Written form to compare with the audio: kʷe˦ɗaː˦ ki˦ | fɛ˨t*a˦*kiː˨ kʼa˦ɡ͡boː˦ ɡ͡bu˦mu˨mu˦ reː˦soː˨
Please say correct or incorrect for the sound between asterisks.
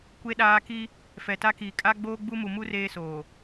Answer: correct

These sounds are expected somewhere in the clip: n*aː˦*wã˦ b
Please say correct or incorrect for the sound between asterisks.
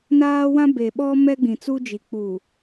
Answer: correct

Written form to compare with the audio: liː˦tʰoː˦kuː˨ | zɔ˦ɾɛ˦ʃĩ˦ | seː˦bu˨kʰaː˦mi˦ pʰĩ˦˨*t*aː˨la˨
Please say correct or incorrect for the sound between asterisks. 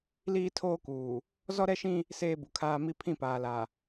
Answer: incorrect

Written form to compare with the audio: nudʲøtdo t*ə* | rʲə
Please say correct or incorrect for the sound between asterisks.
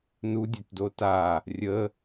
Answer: incorrect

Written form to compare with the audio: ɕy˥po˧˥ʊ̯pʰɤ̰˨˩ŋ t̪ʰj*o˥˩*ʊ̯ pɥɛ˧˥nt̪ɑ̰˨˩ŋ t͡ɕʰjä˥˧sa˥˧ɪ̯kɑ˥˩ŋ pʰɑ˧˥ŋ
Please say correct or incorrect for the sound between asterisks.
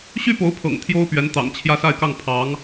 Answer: incorrect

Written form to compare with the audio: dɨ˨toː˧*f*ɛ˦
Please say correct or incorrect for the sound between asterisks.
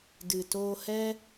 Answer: incorrect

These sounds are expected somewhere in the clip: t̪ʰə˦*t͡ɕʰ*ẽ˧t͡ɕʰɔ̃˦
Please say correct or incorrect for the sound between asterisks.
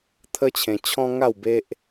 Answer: correct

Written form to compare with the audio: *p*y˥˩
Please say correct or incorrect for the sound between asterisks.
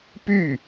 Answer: correct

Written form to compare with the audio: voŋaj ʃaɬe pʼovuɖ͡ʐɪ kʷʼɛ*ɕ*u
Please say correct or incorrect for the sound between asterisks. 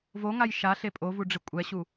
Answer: correct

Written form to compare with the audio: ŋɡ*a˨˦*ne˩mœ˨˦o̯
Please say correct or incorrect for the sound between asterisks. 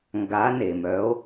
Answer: correct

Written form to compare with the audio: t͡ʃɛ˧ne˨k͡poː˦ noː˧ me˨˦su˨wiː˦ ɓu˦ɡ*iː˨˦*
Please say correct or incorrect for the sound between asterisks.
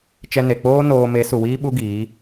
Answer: correct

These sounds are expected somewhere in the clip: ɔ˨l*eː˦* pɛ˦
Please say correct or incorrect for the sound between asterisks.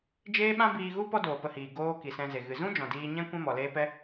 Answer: correct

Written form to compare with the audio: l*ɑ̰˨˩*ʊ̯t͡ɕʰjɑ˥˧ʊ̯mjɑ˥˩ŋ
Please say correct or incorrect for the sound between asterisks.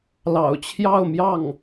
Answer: correct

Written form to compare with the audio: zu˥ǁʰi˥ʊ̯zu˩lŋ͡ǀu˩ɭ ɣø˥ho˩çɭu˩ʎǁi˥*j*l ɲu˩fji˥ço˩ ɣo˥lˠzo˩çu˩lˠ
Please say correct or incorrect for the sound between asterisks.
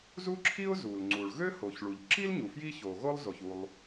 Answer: incorrect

